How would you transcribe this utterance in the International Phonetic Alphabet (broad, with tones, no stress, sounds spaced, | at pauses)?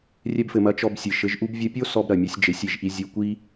rʲ ɛ˧ b f ɘ˩ m ɐ˩˥ t͡ʃ ɔ˧ b sʲ ɨ˩ ʃ ɘ˩˥ ʒ ʔ u˥ b vʲ ɐ˥ pʲ o˥ s ɔ˧ b ɾ ɐ˩ mʲ o˩˥ sʲ d͡ʒ e˩˥ sʲ i˩ ʒ ʔ i˧ zʲ u˧ kʷ i˥